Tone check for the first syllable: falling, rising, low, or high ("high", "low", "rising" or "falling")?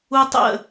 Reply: high